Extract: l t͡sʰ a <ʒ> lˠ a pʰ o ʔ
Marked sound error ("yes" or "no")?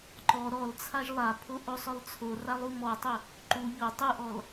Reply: no